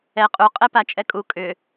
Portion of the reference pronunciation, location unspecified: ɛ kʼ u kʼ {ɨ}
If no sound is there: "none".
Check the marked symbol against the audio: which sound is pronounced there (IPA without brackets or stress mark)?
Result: ʏ